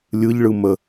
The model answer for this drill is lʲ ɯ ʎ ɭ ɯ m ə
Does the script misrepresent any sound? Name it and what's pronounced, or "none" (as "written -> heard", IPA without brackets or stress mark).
none